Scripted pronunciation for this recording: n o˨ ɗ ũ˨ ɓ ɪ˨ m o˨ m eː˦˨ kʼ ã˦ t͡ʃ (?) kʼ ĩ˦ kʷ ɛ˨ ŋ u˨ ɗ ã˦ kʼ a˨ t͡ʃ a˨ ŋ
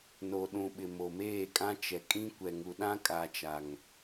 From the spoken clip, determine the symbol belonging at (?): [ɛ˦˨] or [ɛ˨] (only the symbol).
ɛ˨